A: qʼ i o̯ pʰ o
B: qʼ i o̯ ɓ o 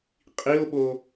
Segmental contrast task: B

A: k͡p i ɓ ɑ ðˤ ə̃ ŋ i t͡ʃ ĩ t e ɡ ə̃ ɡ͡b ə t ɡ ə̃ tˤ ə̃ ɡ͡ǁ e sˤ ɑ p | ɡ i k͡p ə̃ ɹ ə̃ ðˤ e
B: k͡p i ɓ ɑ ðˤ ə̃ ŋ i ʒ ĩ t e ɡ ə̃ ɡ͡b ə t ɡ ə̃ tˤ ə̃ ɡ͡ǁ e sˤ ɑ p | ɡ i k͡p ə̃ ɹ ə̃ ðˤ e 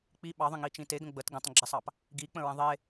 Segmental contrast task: A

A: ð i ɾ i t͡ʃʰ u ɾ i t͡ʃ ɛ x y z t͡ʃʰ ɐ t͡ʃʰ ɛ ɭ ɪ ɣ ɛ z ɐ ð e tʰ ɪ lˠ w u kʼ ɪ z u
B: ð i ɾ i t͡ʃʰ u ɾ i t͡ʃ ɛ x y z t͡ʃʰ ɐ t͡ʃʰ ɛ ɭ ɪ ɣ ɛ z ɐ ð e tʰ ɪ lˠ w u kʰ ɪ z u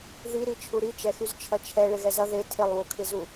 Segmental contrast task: B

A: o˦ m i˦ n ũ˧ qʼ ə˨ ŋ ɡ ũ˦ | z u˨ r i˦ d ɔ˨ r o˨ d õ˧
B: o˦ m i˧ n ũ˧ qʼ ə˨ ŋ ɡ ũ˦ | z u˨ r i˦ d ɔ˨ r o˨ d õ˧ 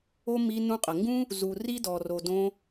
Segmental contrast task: B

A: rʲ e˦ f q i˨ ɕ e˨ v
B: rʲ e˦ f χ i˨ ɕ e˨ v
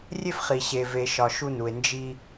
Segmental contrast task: B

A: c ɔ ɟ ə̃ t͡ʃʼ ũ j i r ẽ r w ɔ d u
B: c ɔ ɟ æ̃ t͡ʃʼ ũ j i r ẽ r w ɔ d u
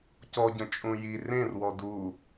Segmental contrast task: A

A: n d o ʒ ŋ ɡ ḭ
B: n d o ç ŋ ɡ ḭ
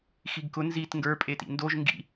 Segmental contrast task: A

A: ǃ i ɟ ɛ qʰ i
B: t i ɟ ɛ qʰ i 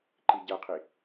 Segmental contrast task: A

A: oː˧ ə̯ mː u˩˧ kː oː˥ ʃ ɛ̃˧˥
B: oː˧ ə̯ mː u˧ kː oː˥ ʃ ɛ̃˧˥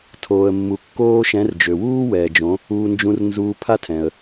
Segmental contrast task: B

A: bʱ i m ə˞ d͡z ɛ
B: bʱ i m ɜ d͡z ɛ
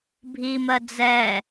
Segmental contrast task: B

